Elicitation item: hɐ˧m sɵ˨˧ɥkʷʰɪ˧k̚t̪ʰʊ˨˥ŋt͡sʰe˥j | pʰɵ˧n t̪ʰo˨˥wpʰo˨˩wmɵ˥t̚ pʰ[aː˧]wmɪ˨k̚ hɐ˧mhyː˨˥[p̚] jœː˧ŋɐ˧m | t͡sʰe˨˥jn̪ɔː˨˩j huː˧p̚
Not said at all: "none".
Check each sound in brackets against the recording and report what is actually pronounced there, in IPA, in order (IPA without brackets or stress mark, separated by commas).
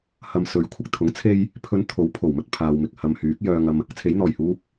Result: aː˧, k̚